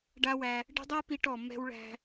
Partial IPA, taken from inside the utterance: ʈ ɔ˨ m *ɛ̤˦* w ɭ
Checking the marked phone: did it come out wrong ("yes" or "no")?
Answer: no